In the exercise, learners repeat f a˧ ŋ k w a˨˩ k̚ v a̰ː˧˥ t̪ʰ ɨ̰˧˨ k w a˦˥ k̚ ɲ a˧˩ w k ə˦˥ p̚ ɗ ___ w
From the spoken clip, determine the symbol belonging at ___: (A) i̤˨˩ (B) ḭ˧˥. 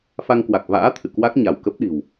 A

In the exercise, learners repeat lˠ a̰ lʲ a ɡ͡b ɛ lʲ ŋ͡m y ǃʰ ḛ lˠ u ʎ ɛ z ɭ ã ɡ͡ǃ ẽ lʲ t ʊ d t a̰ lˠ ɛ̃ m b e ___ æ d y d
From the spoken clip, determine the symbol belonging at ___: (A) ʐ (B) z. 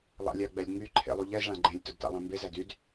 B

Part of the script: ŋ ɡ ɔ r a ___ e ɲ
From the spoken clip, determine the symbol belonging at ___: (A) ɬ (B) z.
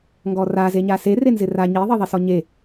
B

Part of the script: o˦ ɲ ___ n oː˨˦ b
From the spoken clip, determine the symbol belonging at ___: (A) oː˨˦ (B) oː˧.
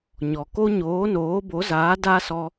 A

